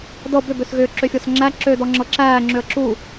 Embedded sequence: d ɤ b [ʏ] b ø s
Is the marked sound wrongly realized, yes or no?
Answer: no